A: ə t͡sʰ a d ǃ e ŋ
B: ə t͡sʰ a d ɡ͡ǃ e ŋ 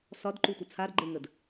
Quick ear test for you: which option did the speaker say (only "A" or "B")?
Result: B